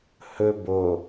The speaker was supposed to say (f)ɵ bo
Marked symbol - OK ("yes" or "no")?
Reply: no